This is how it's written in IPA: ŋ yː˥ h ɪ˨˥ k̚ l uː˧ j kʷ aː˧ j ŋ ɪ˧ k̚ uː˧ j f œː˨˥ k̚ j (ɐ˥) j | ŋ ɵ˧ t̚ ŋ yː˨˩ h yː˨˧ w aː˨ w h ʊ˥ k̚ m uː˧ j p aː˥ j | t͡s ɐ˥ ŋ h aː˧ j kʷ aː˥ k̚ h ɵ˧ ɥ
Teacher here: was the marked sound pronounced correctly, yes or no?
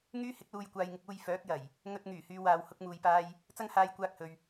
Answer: no